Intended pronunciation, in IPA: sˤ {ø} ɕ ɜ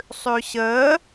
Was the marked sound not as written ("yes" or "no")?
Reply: no